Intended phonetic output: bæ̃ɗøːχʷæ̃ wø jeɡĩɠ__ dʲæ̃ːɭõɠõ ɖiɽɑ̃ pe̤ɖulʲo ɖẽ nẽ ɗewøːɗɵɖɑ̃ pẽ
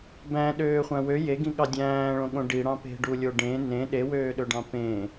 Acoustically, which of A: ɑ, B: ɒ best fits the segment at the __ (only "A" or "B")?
A